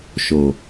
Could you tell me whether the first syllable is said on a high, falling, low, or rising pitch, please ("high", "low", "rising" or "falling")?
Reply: low